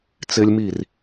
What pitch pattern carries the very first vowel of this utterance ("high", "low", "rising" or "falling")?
high